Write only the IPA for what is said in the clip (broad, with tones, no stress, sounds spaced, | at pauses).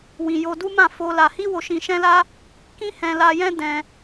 w ĩ˨ j o˧ d u˦ m ã˦˨ f o˧ l a˧ h i˦ w o˧ ʃ ĩ˧ ʃ ɛ̃˦ l a˦ | k ĩ˦ h ɛ̃˧ l a˧ j ɛ̃˦ d ɛ̃˧